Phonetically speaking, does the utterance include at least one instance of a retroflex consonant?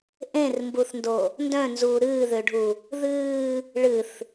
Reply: yes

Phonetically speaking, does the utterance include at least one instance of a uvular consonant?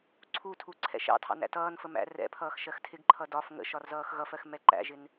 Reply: no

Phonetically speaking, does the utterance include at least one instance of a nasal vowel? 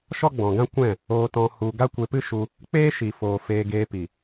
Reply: yes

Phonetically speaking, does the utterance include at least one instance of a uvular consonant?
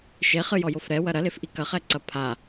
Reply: yes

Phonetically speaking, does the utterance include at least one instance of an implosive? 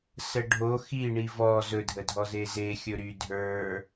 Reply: no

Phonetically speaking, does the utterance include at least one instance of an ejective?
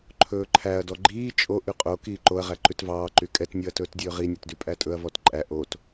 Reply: yes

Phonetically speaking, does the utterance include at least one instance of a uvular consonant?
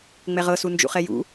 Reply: yes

